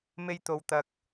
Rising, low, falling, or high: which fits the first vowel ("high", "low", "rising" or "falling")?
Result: high